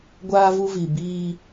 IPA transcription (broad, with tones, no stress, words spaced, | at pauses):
ɡʷaː˦vu˦vi˨ biː˦